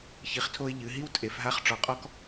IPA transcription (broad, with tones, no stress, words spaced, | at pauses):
çi˩˧χtʰo˧ɪ̯ ʎɨ˩˧ɦi˥wtʼe˩˧fɦa˧˥χ ʈ͡ʂɔ˩qʼɔ˧k